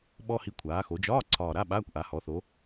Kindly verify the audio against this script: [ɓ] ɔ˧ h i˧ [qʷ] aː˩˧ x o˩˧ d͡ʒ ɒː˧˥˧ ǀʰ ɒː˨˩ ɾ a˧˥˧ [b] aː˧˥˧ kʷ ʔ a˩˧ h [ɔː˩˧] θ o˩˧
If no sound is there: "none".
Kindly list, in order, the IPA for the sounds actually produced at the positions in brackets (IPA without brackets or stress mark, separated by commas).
ɓ, kʷʰ, ɓ, ɔ˩˧